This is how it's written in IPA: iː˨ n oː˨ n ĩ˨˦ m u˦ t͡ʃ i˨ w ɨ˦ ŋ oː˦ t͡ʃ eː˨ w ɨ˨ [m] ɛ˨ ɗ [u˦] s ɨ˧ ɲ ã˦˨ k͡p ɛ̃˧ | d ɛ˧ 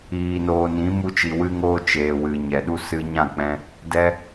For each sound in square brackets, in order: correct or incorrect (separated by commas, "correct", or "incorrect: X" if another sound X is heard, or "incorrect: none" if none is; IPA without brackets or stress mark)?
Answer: incorrect: ɲ, correct